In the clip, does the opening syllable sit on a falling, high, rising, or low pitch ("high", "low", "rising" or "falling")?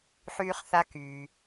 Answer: high